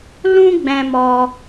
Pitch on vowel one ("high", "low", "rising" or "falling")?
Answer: high